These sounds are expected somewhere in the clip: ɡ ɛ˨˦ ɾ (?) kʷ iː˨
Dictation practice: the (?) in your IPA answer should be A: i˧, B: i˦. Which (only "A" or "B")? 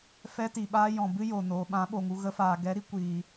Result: A